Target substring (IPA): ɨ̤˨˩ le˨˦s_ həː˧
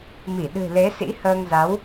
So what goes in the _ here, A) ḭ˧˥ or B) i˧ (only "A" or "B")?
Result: A